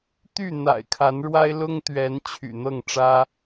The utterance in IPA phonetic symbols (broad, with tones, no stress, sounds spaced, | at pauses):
t̪ y˥˨ n̪ a̰˨˩ ɪ̯ kʰ a˨˦ n ɻ w a˦ ɪ̯ l ʊ˦ ŋ t̪ ɥ ɛ˨˦ n t͡ɕʰ y̰˨˩ n̪ ɤ˥˨ ŋ ʈ͡ʂ ä˦